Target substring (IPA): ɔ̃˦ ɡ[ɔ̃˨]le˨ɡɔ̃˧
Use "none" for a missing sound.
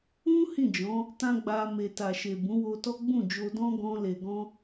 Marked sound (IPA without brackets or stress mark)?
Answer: ɔ̃˧